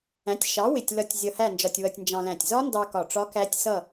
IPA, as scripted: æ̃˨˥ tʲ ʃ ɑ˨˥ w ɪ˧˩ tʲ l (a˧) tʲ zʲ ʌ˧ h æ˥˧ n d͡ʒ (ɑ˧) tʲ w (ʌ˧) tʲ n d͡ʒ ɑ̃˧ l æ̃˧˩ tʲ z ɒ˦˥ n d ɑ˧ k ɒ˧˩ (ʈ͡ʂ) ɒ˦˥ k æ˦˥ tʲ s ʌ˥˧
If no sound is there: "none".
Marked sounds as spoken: ʌ˧, ɒ˧, ʌ˧, ʈ͡ʂ

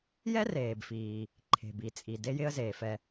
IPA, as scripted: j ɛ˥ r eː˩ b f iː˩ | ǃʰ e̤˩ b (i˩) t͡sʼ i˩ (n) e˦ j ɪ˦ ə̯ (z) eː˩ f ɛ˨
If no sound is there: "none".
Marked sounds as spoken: i˩, d, z

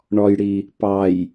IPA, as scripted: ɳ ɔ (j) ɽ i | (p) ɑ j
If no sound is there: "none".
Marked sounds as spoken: j, p

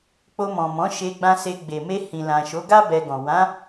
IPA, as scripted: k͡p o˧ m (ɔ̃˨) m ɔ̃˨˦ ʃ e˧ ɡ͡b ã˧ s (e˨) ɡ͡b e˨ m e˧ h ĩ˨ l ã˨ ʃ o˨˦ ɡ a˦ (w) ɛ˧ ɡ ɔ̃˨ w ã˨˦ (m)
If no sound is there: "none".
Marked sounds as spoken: ɔ̃˨, e˧, b, none

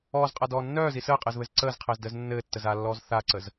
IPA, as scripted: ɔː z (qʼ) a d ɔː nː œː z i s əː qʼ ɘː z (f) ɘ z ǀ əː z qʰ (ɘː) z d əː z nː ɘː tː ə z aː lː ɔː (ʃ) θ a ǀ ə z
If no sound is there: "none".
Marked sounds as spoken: qʼ, β, ɘː, z

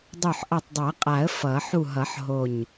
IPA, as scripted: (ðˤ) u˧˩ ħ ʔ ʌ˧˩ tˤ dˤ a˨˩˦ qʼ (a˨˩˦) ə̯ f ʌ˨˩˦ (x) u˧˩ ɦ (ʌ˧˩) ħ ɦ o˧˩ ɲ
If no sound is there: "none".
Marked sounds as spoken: dˤ, a˨˩˦, ħ, ʌ˨˩˦

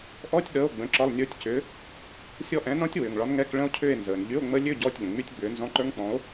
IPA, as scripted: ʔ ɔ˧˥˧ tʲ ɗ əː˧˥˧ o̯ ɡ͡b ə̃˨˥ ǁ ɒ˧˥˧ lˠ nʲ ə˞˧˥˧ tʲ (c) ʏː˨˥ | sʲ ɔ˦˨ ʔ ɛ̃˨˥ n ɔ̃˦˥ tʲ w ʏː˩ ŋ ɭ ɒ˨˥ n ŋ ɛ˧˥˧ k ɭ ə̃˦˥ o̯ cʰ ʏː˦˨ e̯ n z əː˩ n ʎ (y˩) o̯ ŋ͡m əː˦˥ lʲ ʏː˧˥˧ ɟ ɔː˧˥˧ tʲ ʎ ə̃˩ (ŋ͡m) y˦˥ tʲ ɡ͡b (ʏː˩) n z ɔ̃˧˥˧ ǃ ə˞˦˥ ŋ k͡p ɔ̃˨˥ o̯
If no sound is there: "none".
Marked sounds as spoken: c, y˧˥˧, ŋ͡m, ʏː˨˥

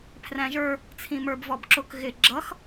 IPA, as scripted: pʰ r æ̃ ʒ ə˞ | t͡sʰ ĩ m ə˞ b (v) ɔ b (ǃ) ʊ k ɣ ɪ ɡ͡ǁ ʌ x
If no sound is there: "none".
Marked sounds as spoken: v, ǁ

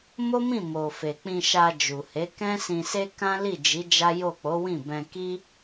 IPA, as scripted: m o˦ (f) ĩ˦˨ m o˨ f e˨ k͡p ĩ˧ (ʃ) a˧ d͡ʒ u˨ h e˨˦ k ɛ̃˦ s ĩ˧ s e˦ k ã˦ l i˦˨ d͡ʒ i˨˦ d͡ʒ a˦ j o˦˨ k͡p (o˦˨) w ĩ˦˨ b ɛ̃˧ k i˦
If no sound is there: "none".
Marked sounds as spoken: m, ʃ, o˨˦

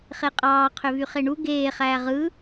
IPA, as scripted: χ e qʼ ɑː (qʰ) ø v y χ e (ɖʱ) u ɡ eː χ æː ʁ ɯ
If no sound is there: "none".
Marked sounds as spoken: qʰ, ɳ

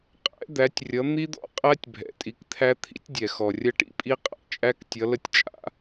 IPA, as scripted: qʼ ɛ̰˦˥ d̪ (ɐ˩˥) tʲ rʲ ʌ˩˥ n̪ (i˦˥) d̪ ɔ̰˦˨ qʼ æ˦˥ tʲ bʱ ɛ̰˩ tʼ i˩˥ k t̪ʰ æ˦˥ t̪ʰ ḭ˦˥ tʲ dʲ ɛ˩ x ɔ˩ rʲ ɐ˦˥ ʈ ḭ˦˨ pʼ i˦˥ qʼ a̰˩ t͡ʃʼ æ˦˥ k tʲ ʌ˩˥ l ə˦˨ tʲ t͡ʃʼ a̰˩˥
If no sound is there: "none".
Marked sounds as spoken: æ˩˥, i˦˥

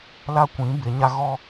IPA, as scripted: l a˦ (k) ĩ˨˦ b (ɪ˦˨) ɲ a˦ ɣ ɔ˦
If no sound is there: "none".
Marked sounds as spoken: kʷ, ɪ˨˦

